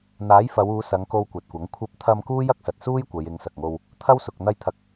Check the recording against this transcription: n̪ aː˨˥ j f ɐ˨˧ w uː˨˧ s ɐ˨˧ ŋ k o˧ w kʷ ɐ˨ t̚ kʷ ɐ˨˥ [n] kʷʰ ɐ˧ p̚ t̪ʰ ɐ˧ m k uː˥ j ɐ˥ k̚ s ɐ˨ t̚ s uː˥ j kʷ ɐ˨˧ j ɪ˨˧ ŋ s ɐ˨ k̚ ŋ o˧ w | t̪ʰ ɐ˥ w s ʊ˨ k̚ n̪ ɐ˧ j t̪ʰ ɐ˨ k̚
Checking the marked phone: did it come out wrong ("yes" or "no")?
yes